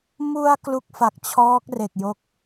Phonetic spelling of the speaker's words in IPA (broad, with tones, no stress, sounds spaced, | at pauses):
m u˧ a̯ k l u˦˥ k̚ f a˨˩ k̚ t͡ɕʰ ɔː˦˥ k̚ r e˨˩ k̚ j o˦˥ k̚